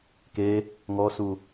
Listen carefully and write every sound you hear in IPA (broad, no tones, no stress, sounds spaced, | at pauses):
k e | ŋ ɔ s u